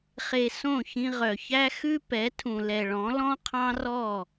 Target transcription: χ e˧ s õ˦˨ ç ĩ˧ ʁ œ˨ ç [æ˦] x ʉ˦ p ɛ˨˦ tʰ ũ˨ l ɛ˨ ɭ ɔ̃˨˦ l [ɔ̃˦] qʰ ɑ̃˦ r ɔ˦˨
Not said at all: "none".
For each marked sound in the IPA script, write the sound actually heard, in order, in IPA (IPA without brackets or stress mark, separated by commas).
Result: æ˦, ɔ̃˦